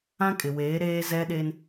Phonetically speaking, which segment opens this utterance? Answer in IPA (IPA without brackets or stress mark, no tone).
ã